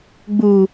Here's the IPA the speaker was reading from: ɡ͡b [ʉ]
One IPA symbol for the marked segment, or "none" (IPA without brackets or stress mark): u